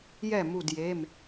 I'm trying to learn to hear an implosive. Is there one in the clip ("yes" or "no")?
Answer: no